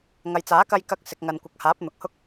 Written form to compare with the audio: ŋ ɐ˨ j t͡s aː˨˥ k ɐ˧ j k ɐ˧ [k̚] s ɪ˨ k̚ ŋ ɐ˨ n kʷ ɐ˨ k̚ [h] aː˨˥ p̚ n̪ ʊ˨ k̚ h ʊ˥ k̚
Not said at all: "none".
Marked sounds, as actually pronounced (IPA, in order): k̚, h

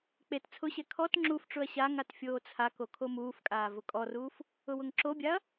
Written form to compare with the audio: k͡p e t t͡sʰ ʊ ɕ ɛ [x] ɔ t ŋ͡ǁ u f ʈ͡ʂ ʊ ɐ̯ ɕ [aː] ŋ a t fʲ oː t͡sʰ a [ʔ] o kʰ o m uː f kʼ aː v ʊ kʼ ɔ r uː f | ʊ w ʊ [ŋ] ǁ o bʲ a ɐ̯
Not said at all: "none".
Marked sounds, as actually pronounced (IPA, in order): kʰ, a, k, ŋ

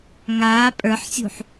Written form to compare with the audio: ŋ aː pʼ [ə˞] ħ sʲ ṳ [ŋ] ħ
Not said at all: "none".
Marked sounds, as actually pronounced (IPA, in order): ə˞, none

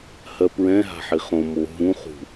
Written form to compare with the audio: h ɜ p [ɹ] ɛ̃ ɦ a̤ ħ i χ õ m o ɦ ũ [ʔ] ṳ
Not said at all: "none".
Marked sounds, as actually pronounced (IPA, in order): ɹ, χ

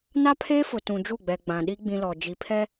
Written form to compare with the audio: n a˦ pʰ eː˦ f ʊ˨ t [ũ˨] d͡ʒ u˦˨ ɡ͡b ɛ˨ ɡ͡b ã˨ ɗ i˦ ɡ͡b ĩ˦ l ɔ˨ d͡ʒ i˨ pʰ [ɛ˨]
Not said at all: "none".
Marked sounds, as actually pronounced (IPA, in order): ũ˨, ɛ˦

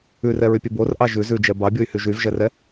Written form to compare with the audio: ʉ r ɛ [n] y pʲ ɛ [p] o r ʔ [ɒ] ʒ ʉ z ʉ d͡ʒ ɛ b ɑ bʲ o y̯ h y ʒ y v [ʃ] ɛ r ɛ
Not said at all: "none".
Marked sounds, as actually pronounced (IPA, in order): ɹ, b, ɑ, ʒ

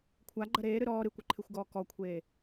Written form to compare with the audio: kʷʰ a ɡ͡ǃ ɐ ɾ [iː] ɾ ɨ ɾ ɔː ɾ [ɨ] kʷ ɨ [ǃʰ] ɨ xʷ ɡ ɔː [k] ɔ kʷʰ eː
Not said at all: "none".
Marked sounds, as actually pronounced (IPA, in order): eː, ɨ, ǃʰ, k

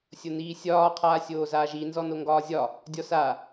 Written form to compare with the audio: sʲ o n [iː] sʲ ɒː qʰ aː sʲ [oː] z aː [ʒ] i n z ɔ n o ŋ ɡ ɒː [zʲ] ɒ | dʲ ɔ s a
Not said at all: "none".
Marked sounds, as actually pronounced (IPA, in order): iː, oː, ʒ, zʲ

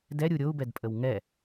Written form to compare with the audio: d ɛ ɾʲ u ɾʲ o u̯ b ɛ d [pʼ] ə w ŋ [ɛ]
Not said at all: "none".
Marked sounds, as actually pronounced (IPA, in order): pʼ, ɛ

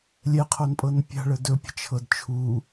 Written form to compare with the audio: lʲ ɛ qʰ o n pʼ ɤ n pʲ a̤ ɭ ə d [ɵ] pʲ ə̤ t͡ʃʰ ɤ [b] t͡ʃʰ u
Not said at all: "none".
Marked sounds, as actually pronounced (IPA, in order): ɵ, d

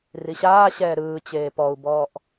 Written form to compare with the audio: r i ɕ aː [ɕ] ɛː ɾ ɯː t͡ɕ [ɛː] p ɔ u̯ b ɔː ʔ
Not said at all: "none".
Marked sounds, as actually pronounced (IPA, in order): ɕ, eː

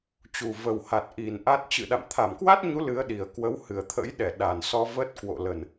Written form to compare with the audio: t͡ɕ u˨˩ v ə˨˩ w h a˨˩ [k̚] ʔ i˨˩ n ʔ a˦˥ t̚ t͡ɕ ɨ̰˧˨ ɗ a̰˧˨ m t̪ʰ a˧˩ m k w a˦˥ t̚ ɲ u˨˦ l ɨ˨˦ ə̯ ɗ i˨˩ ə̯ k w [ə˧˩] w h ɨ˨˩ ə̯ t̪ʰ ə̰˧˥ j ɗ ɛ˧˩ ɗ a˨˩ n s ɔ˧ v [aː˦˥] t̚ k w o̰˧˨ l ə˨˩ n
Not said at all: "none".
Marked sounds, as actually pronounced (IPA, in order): t̚, ə˨˦, əː˦˥

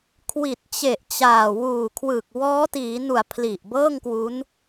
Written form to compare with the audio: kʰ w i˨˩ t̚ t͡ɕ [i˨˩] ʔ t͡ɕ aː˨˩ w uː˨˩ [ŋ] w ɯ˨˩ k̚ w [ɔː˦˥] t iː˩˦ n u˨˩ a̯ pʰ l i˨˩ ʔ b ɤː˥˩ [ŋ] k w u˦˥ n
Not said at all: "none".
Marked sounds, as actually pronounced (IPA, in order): e˨˩, kʰ, ɔː˦˥, ŋ

